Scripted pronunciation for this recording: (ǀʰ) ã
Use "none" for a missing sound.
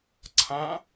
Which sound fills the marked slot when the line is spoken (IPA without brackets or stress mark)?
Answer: ǀʰ